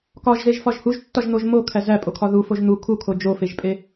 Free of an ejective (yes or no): no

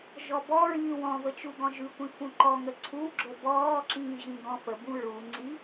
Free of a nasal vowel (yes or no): no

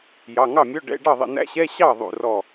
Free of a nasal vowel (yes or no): yes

